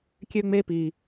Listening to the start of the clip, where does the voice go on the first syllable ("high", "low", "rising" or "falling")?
high